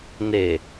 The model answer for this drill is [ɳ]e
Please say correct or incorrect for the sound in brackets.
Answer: incorrect: n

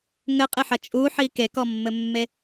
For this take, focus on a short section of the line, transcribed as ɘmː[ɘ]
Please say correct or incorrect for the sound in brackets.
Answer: incorrect: e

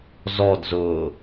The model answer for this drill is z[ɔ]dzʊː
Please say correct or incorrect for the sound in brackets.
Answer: correct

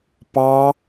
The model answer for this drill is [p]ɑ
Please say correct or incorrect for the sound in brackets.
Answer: correct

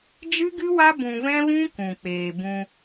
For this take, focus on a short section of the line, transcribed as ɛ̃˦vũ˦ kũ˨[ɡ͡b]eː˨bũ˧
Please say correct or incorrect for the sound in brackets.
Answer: incorrect: k͡p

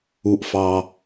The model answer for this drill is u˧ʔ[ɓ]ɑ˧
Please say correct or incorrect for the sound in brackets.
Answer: incorrect: f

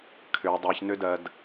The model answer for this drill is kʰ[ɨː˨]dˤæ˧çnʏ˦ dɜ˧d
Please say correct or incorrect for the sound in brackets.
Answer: incorrect: ʏː˨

